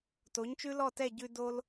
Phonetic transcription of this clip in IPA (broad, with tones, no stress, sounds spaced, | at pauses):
t o˨˦ ɲ t͡ʃ ʉ˦ l ɔ˦˨ t ɛ˦˨ ɟ ʉ˧ d o˧ l